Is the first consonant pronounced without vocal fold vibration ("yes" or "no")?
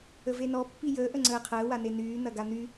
no